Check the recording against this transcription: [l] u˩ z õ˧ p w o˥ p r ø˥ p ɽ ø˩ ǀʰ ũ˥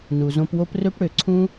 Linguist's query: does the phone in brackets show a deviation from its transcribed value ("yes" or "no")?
yes